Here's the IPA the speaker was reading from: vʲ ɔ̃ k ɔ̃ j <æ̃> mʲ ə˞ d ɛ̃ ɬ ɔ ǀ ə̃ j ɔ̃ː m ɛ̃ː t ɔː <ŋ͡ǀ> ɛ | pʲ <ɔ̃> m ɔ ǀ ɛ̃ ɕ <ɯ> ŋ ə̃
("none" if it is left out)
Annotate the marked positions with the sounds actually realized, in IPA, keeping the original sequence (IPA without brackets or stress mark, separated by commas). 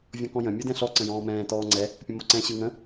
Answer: ə̃, ŋ͡ǀ, ə̃, ɯ